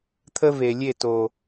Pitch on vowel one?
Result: high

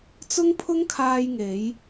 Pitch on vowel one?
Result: high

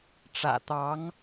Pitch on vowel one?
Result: low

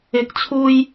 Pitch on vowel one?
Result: rising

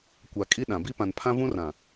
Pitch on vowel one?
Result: low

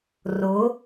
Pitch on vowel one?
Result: rising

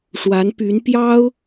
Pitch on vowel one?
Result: rising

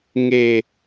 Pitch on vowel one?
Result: low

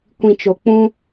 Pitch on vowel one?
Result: low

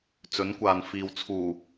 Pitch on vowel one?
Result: rising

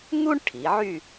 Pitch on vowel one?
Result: high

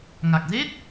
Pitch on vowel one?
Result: low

